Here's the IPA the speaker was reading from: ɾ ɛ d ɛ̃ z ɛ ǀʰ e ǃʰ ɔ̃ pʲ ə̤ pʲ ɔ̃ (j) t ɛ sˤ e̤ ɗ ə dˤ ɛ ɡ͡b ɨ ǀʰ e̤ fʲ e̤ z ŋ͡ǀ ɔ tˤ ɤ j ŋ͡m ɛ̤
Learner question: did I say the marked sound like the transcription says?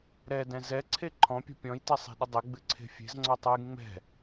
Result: yes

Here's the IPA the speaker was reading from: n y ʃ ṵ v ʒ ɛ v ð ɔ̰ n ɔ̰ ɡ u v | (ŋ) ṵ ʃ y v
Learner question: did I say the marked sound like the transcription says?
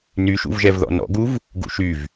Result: no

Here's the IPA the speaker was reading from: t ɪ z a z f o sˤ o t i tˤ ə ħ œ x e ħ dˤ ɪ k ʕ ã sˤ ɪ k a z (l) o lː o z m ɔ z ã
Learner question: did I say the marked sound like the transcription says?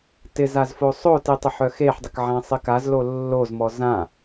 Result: yes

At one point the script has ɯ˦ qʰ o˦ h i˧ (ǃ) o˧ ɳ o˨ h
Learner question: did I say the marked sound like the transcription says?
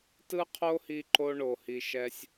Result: yes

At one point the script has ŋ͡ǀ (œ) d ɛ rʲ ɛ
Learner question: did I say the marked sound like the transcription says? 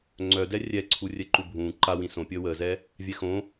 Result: yes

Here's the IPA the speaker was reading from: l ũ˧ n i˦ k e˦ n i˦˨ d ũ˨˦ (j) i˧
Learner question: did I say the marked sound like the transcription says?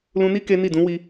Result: no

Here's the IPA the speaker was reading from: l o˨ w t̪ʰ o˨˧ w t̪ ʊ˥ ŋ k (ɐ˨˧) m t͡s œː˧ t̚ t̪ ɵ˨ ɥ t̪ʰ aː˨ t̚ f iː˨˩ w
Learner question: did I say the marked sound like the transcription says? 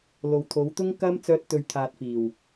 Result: no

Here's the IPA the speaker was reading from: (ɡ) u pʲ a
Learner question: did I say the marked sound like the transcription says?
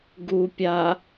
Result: yes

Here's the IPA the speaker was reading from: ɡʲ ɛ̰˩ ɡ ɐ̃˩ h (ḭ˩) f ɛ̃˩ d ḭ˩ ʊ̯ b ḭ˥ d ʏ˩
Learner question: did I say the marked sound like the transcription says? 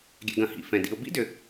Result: yes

